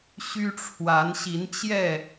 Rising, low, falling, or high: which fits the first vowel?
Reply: high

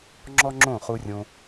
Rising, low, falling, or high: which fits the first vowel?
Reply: high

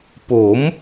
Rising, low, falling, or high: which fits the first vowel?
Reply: rising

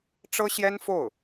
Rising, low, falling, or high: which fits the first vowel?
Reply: high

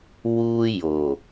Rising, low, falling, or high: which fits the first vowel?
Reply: high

